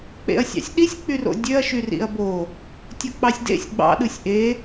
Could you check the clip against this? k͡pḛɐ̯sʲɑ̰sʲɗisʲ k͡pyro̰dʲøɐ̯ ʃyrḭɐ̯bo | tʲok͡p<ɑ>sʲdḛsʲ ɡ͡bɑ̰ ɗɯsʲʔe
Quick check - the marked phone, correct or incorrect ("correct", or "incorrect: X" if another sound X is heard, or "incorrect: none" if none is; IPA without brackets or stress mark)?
correct